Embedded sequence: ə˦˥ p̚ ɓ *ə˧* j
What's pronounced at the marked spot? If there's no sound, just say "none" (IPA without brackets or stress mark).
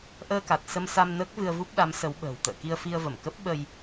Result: ə˧